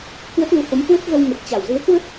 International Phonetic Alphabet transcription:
kwə˦˥t̚lu˨˦ho˨˦m kwə˦˥t̚ɣə˧wŋə˨˩t̚t͡ɕa˧˩w zɨ˨˦ə̯kwə˦˥t̚

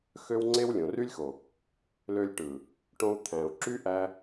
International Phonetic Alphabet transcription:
xø˦wŋ͡ǀe˦w lʲõ˨ry˦lʲxo˨ | lø˧lʲʈɯ˨ | ʈõ˧u̯ t̪ʰæ̃˨u̯ǁy˦ʔæ˧

